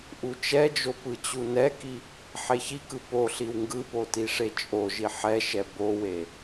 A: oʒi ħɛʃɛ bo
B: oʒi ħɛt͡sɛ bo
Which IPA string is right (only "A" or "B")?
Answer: A